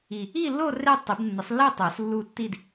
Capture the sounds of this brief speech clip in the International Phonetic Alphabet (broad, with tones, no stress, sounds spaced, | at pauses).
i˥˧ | i˥˧ lː o˥˧ r e˥˧ tˤ i˨˩˦ b nː ɨ˨˩˦ sˤ lː i˥˧ tˤ o˨˩˦ s lː u˥˧ tː i˥˧ d